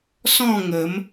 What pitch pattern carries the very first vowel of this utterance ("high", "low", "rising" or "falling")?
falling